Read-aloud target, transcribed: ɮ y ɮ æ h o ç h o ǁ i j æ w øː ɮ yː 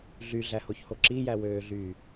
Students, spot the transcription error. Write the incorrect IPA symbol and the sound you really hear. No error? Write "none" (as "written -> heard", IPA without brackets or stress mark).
none